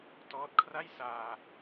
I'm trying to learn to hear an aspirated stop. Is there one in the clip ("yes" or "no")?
yes